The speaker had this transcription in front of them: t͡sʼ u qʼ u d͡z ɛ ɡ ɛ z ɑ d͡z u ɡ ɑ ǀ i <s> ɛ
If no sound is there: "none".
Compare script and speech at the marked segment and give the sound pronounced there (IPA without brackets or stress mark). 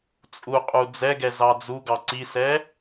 s